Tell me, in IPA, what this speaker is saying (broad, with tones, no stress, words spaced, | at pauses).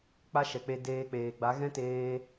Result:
k͡pa˦ʃɛ˨k͡pe˧ deː˧k͡peː˨ɡ͡ba˨˦ ɣɛ̃˦teː˧